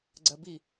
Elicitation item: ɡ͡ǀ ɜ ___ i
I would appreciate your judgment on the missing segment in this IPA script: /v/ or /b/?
b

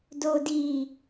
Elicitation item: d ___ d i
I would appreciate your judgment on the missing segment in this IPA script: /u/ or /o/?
o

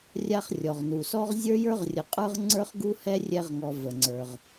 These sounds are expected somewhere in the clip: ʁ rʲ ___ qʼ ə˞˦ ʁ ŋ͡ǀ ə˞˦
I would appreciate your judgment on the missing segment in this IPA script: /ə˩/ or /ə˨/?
ə˨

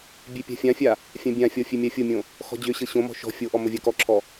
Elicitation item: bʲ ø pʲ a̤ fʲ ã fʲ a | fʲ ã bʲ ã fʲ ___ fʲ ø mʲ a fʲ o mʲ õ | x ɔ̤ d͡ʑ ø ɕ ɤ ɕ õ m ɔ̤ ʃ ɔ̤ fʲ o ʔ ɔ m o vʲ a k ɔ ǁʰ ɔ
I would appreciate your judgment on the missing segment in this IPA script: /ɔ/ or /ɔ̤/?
ɔ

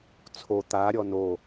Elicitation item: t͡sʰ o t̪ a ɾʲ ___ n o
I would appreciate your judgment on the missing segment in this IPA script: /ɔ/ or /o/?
ɔ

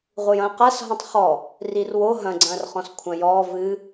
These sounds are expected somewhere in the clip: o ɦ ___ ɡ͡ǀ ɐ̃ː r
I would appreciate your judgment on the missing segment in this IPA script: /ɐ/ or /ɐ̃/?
ɐ̃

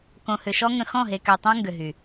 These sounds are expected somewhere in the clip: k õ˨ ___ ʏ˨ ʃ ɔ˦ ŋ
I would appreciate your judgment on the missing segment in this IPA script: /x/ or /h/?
h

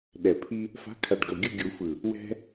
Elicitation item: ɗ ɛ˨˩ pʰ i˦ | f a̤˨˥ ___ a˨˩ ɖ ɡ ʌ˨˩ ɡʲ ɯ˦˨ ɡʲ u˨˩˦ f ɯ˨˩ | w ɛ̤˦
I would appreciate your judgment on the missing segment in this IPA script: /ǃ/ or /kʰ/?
kʰ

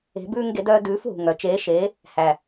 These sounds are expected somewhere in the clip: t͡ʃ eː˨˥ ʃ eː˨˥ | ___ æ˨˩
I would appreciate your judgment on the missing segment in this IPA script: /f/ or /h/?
h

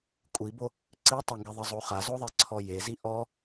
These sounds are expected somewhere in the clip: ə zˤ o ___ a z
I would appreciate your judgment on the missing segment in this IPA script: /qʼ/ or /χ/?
χ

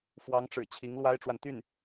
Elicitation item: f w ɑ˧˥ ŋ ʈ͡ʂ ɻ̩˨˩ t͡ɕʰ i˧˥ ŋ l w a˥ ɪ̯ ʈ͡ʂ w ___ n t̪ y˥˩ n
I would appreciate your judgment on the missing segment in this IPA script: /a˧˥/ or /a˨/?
a˨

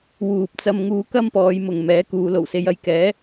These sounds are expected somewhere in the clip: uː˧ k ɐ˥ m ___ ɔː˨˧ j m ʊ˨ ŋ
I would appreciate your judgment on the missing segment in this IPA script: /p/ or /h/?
p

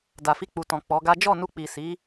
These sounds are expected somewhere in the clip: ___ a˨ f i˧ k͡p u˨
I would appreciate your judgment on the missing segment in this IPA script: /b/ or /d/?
d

